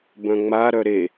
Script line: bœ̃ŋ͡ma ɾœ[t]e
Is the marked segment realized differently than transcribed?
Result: yes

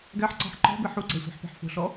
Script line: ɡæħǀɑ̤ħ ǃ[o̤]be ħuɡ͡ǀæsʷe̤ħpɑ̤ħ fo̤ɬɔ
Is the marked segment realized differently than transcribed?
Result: yes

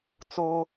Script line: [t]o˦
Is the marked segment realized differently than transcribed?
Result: yes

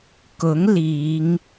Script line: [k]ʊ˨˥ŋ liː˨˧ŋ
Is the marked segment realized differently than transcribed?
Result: no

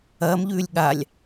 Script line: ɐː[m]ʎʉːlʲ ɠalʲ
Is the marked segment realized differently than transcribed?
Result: no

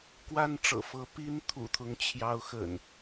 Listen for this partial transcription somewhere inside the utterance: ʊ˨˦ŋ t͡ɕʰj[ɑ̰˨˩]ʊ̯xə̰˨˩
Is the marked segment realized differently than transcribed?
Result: yes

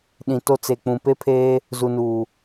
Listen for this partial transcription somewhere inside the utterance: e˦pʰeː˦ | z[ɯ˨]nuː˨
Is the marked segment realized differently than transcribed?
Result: yes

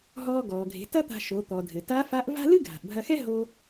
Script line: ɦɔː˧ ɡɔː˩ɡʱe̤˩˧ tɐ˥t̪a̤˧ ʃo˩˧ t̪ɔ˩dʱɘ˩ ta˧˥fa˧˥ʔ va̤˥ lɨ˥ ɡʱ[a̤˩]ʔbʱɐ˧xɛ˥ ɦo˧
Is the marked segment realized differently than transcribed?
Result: no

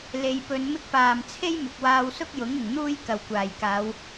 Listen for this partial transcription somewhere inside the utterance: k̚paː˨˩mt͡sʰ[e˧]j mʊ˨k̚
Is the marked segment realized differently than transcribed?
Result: yes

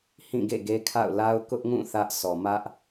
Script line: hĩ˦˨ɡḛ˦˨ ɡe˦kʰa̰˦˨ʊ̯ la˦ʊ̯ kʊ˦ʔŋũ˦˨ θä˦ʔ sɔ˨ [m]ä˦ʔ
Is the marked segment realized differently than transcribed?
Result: no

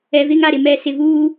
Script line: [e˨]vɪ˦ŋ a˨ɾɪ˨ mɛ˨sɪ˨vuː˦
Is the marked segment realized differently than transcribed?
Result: yes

